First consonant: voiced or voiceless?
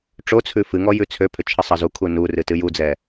voiceless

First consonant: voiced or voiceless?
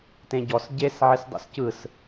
voiceless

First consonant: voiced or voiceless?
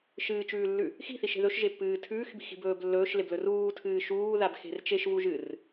voiceless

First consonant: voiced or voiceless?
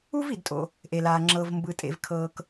voiced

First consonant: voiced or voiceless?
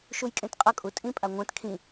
voiceless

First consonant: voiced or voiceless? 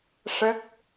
voiceless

